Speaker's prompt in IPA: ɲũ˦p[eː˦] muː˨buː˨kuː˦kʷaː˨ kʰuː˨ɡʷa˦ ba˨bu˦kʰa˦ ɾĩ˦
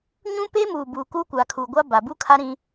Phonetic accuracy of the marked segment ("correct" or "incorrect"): correct